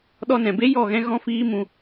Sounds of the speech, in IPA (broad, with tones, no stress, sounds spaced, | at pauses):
ɗ ɔ˧ n ɛ̃˨ b e˦ j ɔ˦˨ ɣ ɛ̃˦ ɣ ɔ̃˦ f iː˦ m ũ˧